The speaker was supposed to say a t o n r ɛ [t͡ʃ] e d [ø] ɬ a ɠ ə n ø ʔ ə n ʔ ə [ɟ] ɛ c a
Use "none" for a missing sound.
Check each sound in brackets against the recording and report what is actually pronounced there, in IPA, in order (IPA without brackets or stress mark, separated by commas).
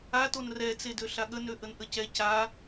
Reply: t͡s, ø, c